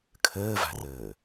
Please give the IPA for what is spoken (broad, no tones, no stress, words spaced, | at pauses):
kʰəːva̤rəː